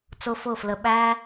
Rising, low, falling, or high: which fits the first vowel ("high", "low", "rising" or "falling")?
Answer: high